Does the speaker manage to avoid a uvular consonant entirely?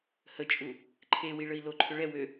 yes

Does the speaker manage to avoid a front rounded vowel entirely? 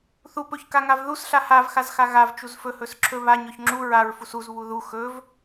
yes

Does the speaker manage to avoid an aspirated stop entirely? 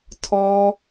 no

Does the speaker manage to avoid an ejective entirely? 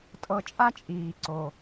no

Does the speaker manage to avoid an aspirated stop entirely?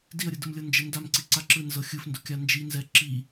yes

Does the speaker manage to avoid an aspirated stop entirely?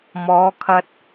no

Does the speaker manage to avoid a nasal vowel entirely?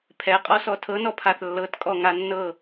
yes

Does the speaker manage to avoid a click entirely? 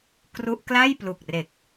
yes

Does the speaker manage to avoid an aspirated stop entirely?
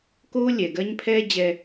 no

